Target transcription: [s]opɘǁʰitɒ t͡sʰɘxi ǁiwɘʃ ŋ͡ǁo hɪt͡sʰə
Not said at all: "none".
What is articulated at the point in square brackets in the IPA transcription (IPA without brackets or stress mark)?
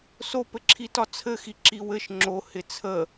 s